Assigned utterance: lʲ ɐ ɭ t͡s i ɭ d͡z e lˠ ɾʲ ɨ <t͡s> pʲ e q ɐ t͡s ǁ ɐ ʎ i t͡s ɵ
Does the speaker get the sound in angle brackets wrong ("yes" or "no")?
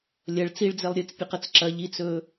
no